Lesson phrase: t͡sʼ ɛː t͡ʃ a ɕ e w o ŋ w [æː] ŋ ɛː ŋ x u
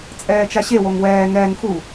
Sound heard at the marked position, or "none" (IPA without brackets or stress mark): ɛː